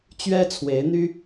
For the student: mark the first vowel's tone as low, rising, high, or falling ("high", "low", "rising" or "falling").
high